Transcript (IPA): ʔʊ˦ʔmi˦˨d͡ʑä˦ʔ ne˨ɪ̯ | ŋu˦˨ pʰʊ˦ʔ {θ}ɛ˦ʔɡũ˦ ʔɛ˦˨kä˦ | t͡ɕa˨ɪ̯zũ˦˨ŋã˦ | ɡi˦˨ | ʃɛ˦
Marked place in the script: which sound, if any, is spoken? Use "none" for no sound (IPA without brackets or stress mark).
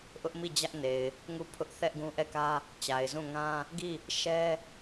θ